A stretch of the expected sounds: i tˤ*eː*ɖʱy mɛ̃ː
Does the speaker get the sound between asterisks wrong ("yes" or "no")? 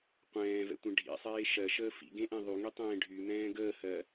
yes